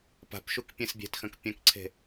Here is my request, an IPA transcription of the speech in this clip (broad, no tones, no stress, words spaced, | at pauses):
pa̤pʃuk pʲẽsbʲe̤txɐ̃k pʲɐ̃kǀʰe̤